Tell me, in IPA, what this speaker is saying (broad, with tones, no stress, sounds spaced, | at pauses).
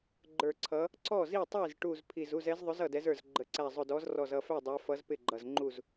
ɡ͡ǃ ə˞˧˩ ǀʰ ʌ˨˥ | ǀ ɔ˥˩ z i˥˩ tˤ i˥˩ z ʈ u˧˩ z pʰ i˧˩ z u˥˩ z ɛ˨˥ z ðˤ ʊ˨˥ z ʌ˧˩ d ɛ˨˥ z ə˞˧˩ z ɡ͡ǃ ə˨˥ ǀ æ˧˩ zˤ ʊ˧˩ d ɔ˨˥ z r ɔ˧˩ z ʌ˧˩ f æ˥˩ dˤ æ˨˥ f ʌ˨˥ z p ɪ˥˩ ɡ͡ǃ ʌ˧˩ z ŋ͡ǃ u˥˩ z